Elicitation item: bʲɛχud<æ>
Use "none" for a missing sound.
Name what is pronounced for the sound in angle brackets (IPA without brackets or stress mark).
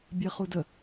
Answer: ə